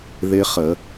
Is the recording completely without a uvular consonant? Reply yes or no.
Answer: no